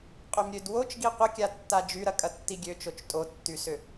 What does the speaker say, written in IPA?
qʼ ø m ɾʲ ø d w o t͡ʃ ɡ i qʷ ə kʲ a tː a d͡ʒ y ɾ ɐ kʼ ɐ tː i ɡʲ ø t͡ʃ o t͡ʃ tʼ o tː y s ʏ

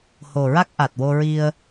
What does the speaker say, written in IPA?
h o˨˩ ɹ a˦˥ k̚ ʔ a˨˩ t̚ w o˧ ɹ i˧ ə̯

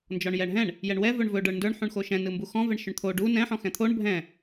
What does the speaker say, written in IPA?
n d͡ʒ ɔ ɳ j ɛ ɳ ɦ ɛ̃ ɳ | j ɛ ɳ w ɛ v ɵ ɳ v ɵ ɖ ə˞ ɳ n d ə˞ ɳ ħ ũ ɳ x o ʃ ɛ̃ n ɯ m b u x ɔ̃ v ɛ ɳ ʃ ɵ ɳ t̪ʰ o ɖ u n ɛ̃ ħ ɔ̃ x ɛ̃ t̪ʰ o ɳ bʱ ɛ̃

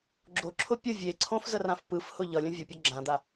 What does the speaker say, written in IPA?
ɡ͡ǁ o ǁʰ ʊ pʲ ʊ vʲ e ǀʰ õ f z ə r ã f p ɯ f h ʊ ʎ ʌ lʲ ə̃ vʲ ʊ pʲ ɔ ɡ͡ǁ ã d̪ a

